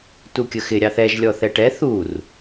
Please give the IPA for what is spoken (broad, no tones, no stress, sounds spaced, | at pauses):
t u kʲ ə x ɪ ɾʲ ɑ θ ɛ ʒ lʲ ɔ θ ɛ ʈ ɛ θ u r